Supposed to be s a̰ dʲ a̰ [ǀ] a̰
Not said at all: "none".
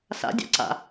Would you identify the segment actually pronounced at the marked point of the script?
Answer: ǀ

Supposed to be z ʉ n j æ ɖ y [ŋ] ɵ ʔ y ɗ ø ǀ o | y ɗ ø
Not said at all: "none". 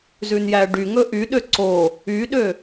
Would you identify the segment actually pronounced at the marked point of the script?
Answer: ŋ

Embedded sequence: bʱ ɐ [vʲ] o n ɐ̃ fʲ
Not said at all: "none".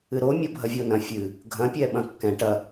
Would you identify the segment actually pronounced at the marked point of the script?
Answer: vʲ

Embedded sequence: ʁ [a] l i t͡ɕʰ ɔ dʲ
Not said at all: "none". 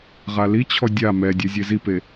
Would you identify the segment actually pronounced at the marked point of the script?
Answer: a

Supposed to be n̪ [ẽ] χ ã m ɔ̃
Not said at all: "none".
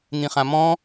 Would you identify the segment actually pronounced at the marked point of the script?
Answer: ĩ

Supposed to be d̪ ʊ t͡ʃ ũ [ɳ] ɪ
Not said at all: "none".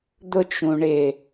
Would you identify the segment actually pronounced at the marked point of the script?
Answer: ɳ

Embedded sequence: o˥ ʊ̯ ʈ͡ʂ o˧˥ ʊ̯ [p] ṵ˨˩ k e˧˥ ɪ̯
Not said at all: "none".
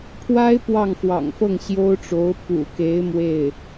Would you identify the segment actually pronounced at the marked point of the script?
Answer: p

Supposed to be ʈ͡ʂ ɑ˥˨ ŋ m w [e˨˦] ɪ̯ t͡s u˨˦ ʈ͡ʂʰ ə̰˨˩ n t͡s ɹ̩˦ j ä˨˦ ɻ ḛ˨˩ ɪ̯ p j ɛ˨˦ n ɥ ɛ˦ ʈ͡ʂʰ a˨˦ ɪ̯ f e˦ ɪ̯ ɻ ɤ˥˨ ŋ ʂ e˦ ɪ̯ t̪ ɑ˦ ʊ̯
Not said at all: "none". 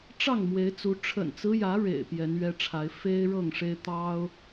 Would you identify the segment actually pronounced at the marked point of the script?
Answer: e˨˦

